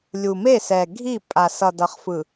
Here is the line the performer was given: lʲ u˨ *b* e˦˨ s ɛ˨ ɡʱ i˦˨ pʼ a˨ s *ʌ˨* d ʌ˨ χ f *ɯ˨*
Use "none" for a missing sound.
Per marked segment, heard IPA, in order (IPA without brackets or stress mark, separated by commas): m, ʌ˨, ɯ˨